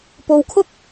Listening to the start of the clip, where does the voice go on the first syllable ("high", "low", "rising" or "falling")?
low